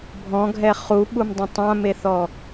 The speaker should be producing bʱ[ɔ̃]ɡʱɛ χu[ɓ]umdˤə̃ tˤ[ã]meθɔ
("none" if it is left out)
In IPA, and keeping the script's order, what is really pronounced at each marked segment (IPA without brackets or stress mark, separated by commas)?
ɔ̃, ɓ, ã